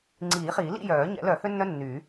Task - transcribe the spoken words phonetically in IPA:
ŋ͡ǀ iː˨˩˦ χ iː˨˩˦ l ḭ˥˨ j œː˨˩˦ ɲ ɛ̰˨˩˦ l œ˨˩˦ h ø˥ nː œ˥ nː yː˨˩˦

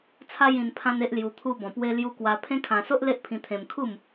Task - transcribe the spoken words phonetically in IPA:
t͡sʰ a˦ j ĩ˧ n pʰ ã˦ n e˦ ʔ l j u˧ t̪ʰ u˧ b ɔ̃˨˩ p w e˦ l j u˧ k w a˧ pʰ ẽ˦ kʰ ã˧ s o˦ ʔ l e˦ ʔ pʰ ĩ˧ t̪ʰ ẽ˧ m kʰ u˥˧ m

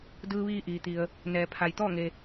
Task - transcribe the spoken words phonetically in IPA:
d ɯː˧ ʋ iː˧ ʔ iː˩ t̪ i˩ ə̯ | n ɛː˩ pʰ a˩ j t̪ ɔː˥˨ ŋ e˩

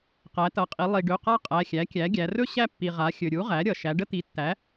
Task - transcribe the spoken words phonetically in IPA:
q æ˩˧ t ʌ˩˧ qʼ i˩˧ lˠ i˩ ɖ ɵ˩˧˩ q a˥ qʼ æ˩˧˩ xʲ æ˩˥ kʲ æ˩˥ ɡʲ æ˩˧ r ɵ˥ ɕ æ˥ pː i˩ ʁ a˩˧ xʲ ɵ˩ ɾʲ u˩˥ ʁ æ˩˥ ɾʲ ʌ˩ ʃ æ˩˧ ɖ ə˥ t̪ i˩˥ tː æ˩˥

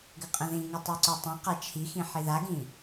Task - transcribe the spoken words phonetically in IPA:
ɡ ɘ qʼ ə̃ ð ĩ ŋ ɘ tˤ ɛ ǀ o tˤ ɛ̃ q a t͡ʃʰ i x ĩ ħ i ð a ɡ ĩ

